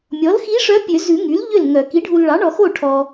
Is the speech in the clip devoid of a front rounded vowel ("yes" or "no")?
no